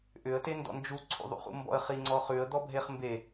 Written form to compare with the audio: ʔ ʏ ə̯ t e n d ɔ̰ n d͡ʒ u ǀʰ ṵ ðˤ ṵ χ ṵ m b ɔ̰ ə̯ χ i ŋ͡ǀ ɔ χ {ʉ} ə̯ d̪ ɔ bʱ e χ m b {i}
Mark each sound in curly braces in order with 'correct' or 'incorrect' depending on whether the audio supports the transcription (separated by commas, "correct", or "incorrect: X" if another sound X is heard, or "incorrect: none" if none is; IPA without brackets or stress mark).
correct, incorrect: e